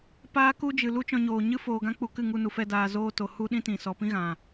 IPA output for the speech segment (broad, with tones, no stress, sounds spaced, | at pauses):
p aː˦ k u˦ d͡ʒ ɨ˨ l u˦ t͡ʃ ɔ̃˧ ɲ oː˨ ɲ ɨ˦ f oː˧ ɡ ã˦ k͡p u˧ k ɨ˦˨ ŋ u˧ n u˨ f ɛ˧ d aː˧ z oː˧ t o˨ h u˦ ɗ ĩ˦ t ĩ˨ s ɔ˨ p ĩ˦ ɣ ã˨